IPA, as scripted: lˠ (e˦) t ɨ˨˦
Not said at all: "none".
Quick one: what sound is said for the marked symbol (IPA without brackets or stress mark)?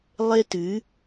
e˦